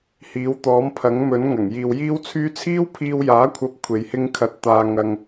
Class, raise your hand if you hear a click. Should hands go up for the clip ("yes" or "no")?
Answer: no